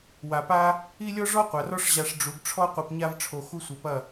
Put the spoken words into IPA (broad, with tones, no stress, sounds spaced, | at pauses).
w a˨ p a˦ | i˦ lʲ ɔ˦ ʐ ɔ˦ qʷ a˨ r ɔ˦ ʂ ʑ a˧ ʂ ɖ͡ʐ u˨˦ ɡ ʈ͡ʂʰ ɔ˦ qʷ i˧ p ɲ a˦ v ʈ͡ʂʰ o˧ x u˦ sʷ ɛ˧ p ɐ˦˨